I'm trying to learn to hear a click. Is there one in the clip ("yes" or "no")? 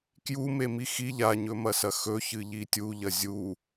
no